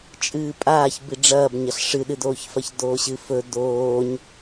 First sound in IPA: t͡ʃʼ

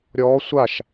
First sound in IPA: ɾʲ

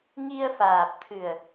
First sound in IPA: ŋ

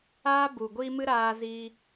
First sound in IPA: aː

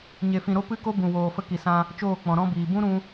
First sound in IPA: ɲ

